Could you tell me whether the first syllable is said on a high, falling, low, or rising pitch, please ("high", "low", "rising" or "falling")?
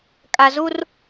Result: low